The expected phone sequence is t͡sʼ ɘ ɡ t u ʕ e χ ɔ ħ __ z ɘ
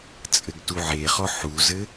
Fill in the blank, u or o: u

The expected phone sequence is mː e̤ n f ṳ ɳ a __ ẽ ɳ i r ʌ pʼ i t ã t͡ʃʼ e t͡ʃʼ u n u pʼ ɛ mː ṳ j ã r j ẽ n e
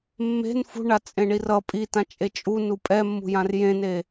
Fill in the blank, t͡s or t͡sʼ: t͡sʼ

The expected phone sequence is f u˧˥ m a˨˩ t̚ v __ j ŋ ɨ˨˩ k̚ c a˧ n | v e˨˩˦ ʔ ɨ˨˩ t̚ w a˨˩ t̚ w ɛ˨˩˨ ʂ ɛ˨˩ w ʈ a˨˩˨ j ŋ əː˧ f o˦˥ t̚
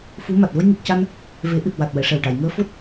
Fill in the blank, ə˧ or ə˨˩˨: ə˧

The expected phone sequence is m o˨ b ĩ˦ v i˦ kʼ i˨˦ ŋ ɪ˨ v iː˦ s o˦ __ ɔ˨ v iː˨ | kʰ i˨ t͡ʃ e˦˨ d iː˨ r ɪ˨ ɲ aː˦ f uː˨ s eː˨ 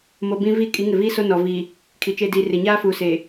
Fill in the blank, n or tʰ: n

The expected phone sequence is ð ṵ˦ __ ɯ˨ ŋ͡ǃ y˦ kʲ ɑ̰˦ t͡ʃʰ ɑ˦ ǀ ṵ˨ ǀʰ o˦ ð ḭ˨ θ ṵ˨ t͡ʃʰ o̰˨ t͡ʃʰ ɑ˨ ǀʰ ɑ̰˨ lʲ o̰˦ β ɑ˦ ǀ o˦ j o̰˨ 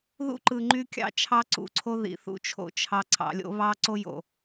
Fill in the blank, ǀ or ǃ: ǃ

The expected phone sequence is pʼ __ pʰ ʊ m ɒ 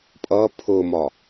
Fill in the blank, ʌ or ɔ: ʌ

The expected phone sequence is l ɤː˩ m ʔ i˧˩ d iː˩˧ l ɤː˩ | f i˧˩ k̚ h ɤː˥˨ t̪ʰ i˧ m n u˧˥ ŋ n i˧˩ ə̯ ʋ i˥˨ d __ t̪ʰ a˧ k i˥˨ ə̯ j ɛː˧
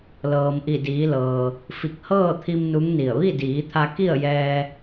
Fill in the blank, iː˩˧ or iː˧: iː˩˧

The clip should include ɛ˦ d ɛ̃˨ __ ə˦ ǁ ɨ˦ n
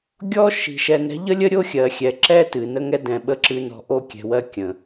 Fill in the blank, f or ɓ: ɓ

